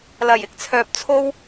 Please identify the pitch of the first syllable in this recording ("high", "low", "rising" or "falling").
low